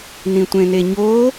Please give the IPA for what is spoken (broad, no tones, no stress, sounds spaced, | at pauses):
n ĩ tʷ ẽ n e ɲ o